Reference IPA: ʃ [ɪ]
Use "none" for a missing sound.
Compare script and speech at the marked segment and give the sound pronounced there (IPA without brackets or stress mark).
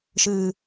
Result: ɨ